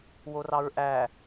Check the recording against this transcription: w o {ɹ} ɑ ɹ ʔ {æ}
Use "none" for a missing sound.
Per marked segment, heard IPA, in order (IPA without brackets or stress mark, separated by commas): r, æ